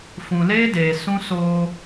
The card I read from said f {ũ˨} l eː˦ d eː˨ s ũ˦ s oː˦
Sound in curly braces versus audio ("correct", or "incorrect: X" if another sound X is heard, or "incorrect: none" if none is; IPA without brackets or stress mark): correct